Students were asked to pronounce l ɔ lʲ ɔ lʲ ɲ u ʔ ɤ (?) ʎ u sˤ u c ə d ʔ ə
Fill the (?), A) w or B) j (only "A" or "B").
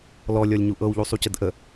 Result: A